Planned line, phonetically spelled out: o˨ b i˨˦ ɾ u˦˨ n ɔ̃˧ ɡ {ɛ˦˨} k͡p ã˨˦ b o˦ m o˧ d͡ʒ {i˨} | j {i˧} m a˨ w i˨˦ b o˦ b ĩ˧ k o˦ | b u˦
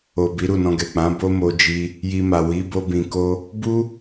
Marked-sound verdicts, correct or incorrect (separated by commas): incorrect, incorrect, correct